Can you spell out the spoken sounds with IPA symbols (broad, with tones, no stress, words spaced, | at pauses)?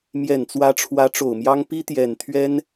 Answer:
mjɛ˨˩nt͡swä˧˥ʈ͡ʂʰwä˧˥ ʈ͡ʂo˨˩ʊ̯mjɑ˥ŋ pi˥t̪jɛ˨˩nt̪ʰɥɛ˥n